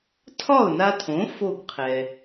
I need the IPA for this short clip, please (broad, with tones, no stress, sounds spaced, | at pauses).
tʰ ɒ˥˩ ʊ̯ n a˧ tʰ õ˩˥ f o˥˩ ɡ qʰ ɛ˩